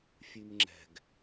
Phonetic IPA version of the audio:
fʲ ʉ m ŋ͡ǁ ɛ̤ ɡ

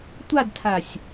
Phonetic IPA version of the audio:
tʷ a d tʰ a sʲ

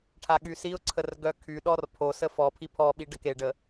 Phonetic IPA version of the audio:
ʈʰ a ɠ y s i ʊ̯ ǀʰ ə r ɡ œ kʰ y ɗ ɔ r pʰ o s ə f ɔ pʰ i pʰ ɔ ɓ i ɖ ə k e ɖ ə

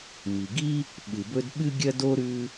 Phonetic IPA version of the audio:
m i˩ ɡ i˥ | ɓ ɨ˩ b ɵ˥ d ɓ ɨ˥ ɡʲ ɐ˥ d o˥ ɾ ʉ˥

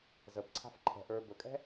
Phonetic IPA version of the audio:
z ə b ǀʰ a̤ f ǃʰ ɛ̤ ʔ ə˞ b ɵ kʼ ɛ̤

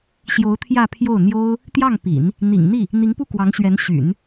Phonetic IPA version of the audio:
ɕ j o˧˥ ʊ̯ t̪ʰ j ä˥˧ pʰ j o˥˩ ʊ̯ n̪ j o˥ ʊ̯ | t̪ j ɑ˥˩ ŋ p ḭ˨˩˦ n | n̪ ḭ˨˩ ŋ n̪ i˥˩ | n̪ i˧˥ ŋ p u˥˩ k w ɑ˧˥ ŋ ɕ ɥ ɛ˧˥ n ɕ y̰˨˩˦ n

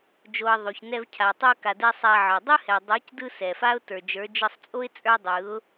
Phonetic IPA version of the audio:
d͡ʒ o˨ ə̯ ðˤ o˨ ç n ɛ˧ v cʰ a˨ tˤ ə˞˧ k a˨ d ɛ˧ sˤ a˧ ʕ ə˞˨ dˤ ɯ˦ h ɛ˨ dˤ ə˞˨˦ c d ɯ˧ s ɛ˨ f a˦ ʊ̯ t ə˞˨ d͡ʒ ə˞˨˦ d͡ʒ ɯ˧ sˤ t͡sʼ o˦ ɪ̯ t͡sʼ ə˞˦ dˤ ɯ˨˦ ʊ̯

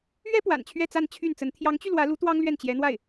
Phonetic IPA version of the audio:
ɥ ɛ˥ p w a̰˨˩ n t͡ɕʰ ɥ ɛ˥˧ t͡s a˥˧ n t͡ɕʰ y˥˩ n t͡s ə˧˥ n t̪ʰ j ɑ˧˥ ŋ t͡ɕ y˧ l w ä˧˥ l u˧˥ t̪ w ɑ˥ ŋ l ɥ ɛ˥˩ n t͡ɕ j ɛ˧˥ n̪ w a˥˩ ɪ̯

